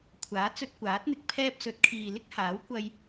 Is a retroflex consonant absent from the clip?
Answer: yes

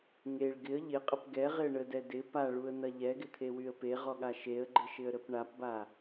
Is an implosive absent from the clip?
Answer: no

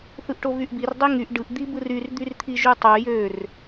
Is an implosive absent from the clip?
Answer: yes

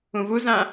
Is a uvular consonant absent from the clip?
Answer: yes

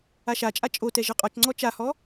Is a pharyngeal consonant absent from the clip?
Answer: yes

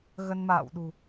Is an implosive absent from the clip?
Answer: no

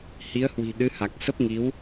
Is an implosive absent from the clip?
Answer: no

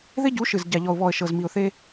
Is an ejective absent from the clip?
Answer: yes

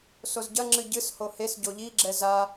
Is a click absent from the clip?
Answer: no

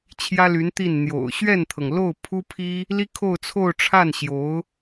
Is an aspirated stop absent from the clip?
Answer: no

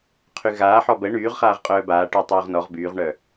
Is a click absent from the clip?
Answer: yes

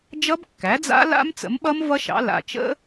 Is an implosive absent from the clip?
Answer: no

